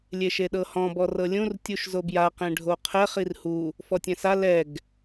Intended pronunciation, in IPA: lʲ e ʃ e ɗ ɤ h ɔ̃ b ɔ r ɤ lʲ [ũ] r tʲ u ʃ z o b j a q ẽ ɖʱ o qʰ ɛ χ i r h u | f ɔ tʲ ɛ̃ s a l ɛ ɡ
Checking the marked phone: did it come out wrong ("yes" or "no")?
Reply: no